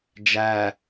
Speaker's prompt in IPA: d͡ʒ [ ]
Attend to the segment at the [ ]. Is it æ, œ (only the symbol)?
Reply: æ